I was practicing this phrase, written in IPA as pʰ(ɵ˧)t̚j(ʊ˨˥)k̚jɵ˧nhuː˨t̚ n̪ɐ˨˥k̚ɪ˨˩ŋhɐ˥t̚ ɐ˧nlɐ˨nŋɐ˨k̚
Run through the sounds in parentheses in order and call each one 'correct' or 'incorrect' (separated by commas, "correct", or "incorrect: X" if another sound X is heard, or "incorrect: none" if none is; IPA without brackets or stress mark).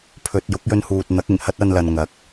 incorrect: ɵ˨, correct